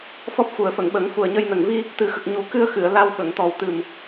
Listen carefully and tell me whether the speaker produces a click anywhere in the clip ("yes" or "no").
no